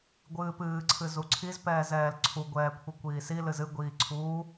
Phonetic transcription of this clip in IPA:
ɡʷ ɨː p ɨː ǀʰ ɨ z u ǀʰ i z p ɛː z ɛː l ǀʰ u ɡʷ ɛː kʷʰ i kʷ iː s i l ɨ z ɨ ɡʷ iː ǀʰ uː

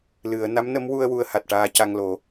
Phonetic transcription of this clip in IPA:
l ɨ˨˩˦ ə̯ n a˧˥ m n ə˧˥ m w u˧ ə̯ w u˧˥ ə̯ h a˨˩ t̚ ʈ aː˧ c a˧ ŋ l o˨˩˦

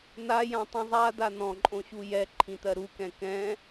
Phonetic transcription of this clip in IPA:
n̪ a j ã tˤ ĩ zˤ a d̪ a n̪ ɔ̃ ǃʼ õ ɕ u j ɛ ǃʰ ĩ t̪ ɜ ɾ u k ɛ̃ k ɛ̃

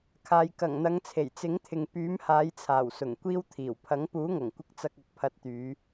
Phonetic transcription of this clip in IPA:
kʰ aː˨ j k ɐ˨˩ ŋ n̪ ɐ˨˧ ŋ t͡sʰ e˨˩ j t͡s ɪ˨˥ ŋ t̪ʰ ɪ˨ ŋ p yː˨˥ m h aː˨˧ j t͡sʰ aː˨˩ w s ʊ˨˩ ŋ kʷ iː˥ w t̪ʰ iː˨˩ w pʰ ɐ˨˥ ŋ p uː˨˥ ŋ ɐ˨˩ ŋ kʷ ɪ˧ k̚ t͡s ɐ˧ k̚ ɐ˨˥ k̚ pʰ ɐ˨˥ t̚ t̪ yː˨˧

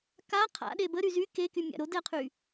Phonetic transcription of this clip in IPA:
k a qʰ a̰ ɗ e b ə ɾ y z y k e k y mʲ a̰ ɾ o d ɛ qʰ y

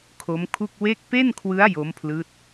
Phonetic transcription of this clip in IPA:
kʰ o˦˥ m kʰ u˥˩ k̚ w e˥˩ k̚ p e˥˩ n kʰ w ɯ˦˥ a̯ j o˦˥ m pʰ l ɯː˦˥ t̚

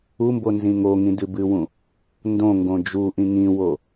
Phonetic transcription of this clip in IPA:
u m b o n z ĩ ŋ o ŋ ĩ d ɨ b ɨ w ũ | n d õ ŋ ɡ õ d͡ʒ u ʔ ĩ ŋ ĩ w o

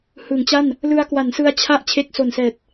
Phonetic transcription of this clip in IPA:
h ɯ˩˦ ŋ t͡ɕ a˥˩ n | l ɯ˧ a̯ k w a˩˦ n s ɯ˧ a̯ t͡ɕʰ a˥˩ ʔ t͡ɕʰ e˦˥ k̚ s o˨˩ n s ɛː˨˩ t̚

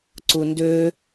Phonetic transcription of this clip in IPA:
ǀ u n d ø

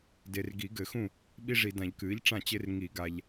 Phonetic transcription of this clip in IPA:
d e˨ r ɡ i˨˩˦ ɡ ɘ˨˩˦ x ũ˥˩ | ɓ i˦ ʐ i˨ d ã˨˩˦ ʎ k ɨː˩˥ ʎ ʈ͡ʂ ã˥˩ t͡ɕ e˦ r ŋ i˨˩˦ ɡ a˨ ʎ

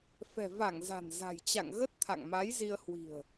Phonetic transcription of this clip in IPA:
f ɛ̤˨˩ v a˧˩ ŋ z a̤˨˩ n z a̤˨˩ j t͡ɕ a̰˧˨ ŋ ɣ ə˦˥ t̚ t̪ʰ a̰˧˨ ŋ m a˨˦ j z i˧ ə̯ h w i̤˨˩ ə̯

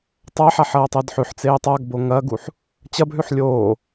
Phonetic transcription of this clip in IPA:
tˤ a ħ a ħ ɐː tˤ ɨ d ħ ʉ ħ t͡s eː tˤ a ɡ b o ŋ ɐ ɡ u ħ | t͡ɕ ɐ b ɦ ʉ ħ lʲ oː

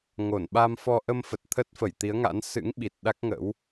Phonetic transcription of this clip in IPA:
ŋ o˧˩ n ɓ a˧ m f ɔ˧ ʔ ə˧ m f ə˨˩ t̚ t̪ʰ ə˦˥ t̚ f ə˧˩ j t̪ i˨˦ ə̯ ŋ a̰˧˥ n s ɨ̰˧˥ ŋ ɓ i˨˩ t̚ ɗ a˦˥ k̚ ŋ ə̰˧˥ w

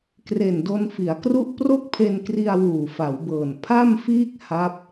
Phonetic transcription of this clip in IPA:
k r e˨˩ n d o˧ n f i˩˦ a̯ k r u˥˩ ʔ p r o˥˩ k̚ pʰ e˧ n k r i˧ a̯ w uː˨˩ f a˩˦ w b ɤː˨˩ n pʰ a˥˩ m f iː˥˩ k̚ h a˦˥ p̚

